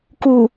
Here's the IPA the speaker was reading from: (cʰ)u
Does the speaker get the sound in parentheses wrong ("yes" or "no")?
yes